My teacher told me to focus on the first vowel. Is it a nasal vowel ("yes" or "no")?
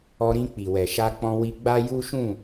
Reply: no